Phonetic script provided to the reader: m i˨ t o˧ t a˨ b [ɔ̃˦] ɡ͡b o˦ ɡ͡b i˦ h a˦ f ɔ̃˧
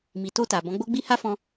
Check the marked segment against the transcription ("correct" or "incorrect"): incorrect